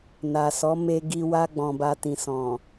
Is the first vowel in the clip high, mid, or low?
low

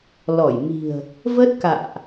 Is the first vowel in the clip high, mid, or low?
mid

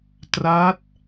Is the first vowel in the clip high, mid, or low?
low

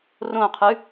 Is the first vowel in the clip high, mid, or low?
mid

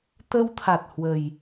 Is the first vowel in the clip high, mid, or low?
mid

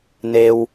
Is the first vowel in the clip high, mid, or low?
mid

